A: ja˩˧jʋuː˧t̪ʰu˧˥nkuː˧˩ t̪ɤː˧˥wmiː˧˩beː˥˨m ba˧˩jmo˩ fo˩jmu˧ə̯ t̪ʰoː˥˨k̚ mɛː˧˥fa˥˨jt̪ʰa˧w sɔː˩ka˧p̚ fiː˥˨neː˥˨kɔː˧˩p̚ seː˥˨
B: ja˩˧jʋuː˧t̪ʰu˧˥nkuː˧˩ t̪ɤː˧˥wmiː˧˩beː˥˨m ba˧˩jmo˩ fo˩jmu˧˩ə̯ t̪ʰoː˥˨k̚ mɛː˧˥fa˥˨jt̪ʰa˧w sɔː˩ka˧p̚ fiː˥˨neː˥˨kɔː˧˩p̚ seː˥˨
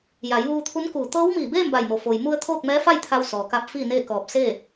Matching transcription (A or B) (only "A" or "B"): A